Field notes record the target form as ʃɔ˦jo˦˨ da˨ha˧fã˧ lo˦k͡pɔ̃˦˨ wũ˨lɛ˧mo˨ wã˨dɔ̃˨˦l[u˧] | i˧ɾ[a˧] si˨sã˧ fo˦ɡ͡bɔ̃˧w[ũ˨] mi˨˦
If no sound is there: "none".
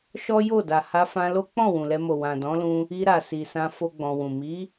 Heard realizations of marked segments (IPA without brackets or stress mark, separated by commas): ũ˧, a˨, ũ˨